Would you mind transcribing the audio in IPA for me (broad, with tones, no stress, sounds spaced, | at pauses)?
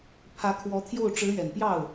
pʰ ä˧˥ kʰ w ɔ˧˥ t̪ʰ j o˥˩ ʊ̯ ʈ͡ʂ ɻ̩˧˥ ɥ ɛ˨˩ n p j ɑ˥˩ ʊ̯